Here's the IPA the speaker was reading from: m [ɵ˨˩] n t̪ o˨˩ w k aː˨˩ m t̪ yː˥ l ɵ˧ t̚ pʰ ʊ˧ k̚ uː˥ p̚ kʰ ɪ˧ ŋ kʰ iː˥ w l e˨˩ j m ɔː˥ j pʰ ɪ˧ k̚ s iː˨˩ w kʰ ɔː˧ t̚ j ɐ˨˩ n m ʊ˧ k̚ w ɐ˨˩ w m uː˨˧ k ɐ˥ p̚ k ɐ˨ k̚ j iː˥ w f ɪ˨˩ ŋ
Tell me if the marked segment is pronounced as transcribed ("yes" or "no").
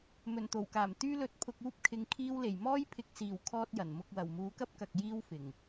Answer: yes